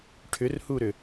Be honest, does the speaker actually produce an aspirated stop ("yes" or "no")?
yes